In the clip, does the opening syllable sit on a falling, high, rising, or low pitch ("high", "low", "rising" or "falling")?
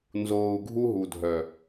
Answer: low